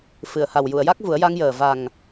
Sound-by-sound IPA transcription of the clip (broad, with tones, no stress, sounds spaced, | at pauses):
f ɨ˨˩˨ ə̯ h a˨˩ w j u˨˩˨ ə̯ j a˦˥ k̚ v u˨˩˦ ə̯ j a˧ ŋ j əː˨˩ v a˨˩ ŋ